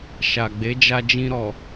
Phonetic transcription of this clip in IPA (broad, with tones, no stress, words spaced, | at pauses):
ʃa˨ɡ͡be˨˦d͡ʒa˧d͡ʒĩ˧ ɾɔ˨